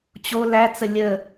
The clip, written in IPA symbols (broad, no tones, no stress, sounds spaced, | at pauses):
t͡ɕ o l æ t͡s ə lʲ ə